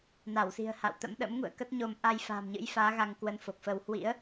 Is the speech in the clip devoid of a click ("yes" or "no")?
yes